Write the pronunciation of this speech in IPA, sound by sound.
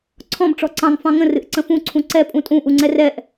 ǀʰ ɔ̃ b ʈ͡ʂ ɔ ǀ ɑ̃ ŋ f ɑ̃ ŋ ə̃ r ɨ ʔ ǀ ə̃ f ũ ǀʰ ũ ǀ ɛ pʼ ũ tʼ ũ ʔ u ŋ͡ǀ ɛ r ɛ ʔ

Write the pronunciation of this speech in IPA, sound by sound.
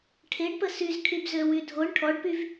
ʈʰ e ɖ p ə s y z kʰ y b z ø w y dʱ o ɳ ʈʰ ɔ ɖ p y v

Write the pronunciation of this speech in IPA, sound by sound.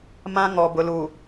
m ã˦ ŋ ɔ˨ b ʊ˨ l u˨

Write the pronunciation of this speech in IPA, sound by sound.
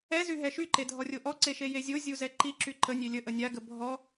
ɛ z y ɦ ɛ ʃ y ǃ e dʱ ɔ rʲ o ʔ ɔ ǀ e ʃ e j e zʲ o zʲ u z ɛ ǃ i ǁ y ǃ ə nʲ e lʲ ə ʔ ə nʲ a ɡ ə bʱ ɔ

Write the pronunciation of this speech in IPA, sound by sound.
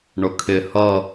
ɳ ʊ kʰ ɪ h ʌ

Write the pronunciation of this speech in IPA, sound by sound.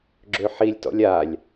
ɡ͡ǁ ø ħ i lʲ t ɔ̰ lʲ a lʲ

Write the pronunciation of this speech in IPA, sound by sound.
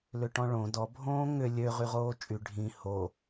l ʏ ʈ ɔ̃ ɭ õ d ɔ bʱ õː ŋ ʏ lʲ ø ʁ y ʁ oː t͡ʃʼ y ɖʱ ĩ h o

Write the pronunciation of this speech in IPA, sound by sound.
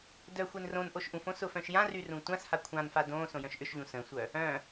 d œ xʷ e n r õ n ʔ o ʃ ʔ ũ f õ s ʊ f œ̃ ʃ j ã r y r ũ tʷ ã s h a kʷʰ ã n f a d õ s õ j œ̃ ʃ ʔ ʏ ʃ ʎ ũ s ə̃ sʷ œ | œ̃

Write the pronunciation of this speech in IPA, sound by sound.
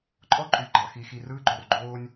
ǃʼ ɔ˦ ǃʼ y˨ ɡ͡ǃ ɑ˨ x i˨ x i˨ r ɯː˦ ɡ͡ǃ o˨ r ɡ͡ǃ oː˦ nʲ

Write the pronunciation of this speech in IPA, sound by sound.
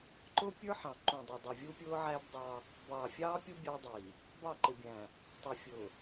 ǃ ʊ˦ pʲ ə˞˦ ħ ɑ̃˨ ǃ ũ˨ dˤ ʊ˨ dˤ ʌ˨ vʲ u˦ pʲ ʊː˦ ʕ æː˦ b dˤ ɑ˦ | b ɑː˨ fʲ ɑː˦ pʲ u˦ bʲ ɑ˦ dˤ iː˨ | b ɑ˦˨ ǃ ɪ˨ bʲ æ̃˨ | tˤ ə˞˨ fʲ ʊː˨

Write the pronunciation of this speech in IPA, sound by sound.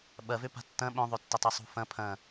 ɓ ɐ v ø p a̤ tː ɐ̃ ɓ œ̃ ðˤ ø tː ɪ tˤ ø sˤ ṳ f ɐ̃ pʰ ɐ̃

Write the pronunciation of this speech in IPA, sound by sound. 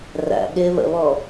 r æ̰ ɠ ɪː β ə̰ β ɔ

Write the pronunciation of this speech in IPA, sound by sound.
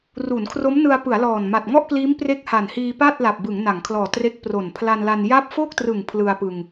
r u˩˦ n kʰ r o˦˥ m n ɯ˧ a̯ p ɯ˩˦ a̯ l ɔː˨˩ n m a˨˩ t̚ ŋ ɔ˥˩ ʔ k l iː˦˥ m p r e˦˥ k̚ h a˨˩ n h iː˧ p a˥˩ t̚ l a˨˩ p̚ b ɯ˩˦ ŋ n a˩˦ ŋ kʰ l ɔː˨˩ t r e˦˥ k̚ p r o˨˩ n pʰ l a˧ n l a˧ n j a˥˩ p̚ f o˥˩ k̚ t r ɯ˨˩ ŋ pʰ l ɯ˧ a̯ p ɯ˧ ŋ

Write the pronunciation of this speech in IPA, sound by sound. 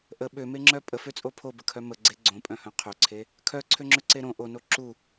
ʔ ə ɓ ø m e ŋ͡ǁ œ pʼ ə f ø t͡sʼ o pʰ o b ə kʰ œ m ə ɡ͡ǀ e ɡ͡ǀ õ pʼ œ̃ h œ̃ qʰ ø ǀʰ e | kʰ œ ǀʰ ø ŋ͡ǁ ø ǀ e ɾ õ ʔ o n o ǁ u

